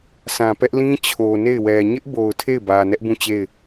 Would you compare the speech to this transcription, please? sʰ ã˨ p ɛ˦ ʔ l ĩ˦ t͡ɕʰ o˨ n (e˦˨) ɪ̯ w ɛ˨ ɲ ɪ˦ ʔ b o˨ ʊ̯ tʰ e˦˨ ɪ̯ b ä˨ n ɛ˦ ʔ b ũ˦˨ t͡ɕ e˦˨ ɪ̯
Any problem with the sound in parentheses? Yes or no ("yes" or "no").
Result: no